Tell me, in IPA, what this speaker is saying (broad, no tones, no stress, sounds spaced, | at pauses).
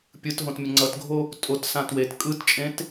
pʲ ɯ t ɦ õ t mʲ ʌ ŋ͡ǀ ʌ t ɡʱ o | tʼ o t s ã t w e t kʼ ɯ t t͡ʃʼ ẽ t